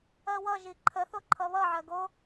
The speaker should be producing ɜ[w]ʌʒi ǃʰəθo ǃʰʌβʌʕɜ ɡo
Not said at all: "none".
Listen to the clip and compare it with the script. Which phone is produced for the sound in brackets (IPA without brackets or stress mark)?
w